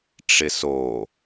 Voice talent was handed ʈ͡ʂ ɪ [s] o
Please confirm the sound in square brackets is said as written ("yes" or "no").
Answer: yes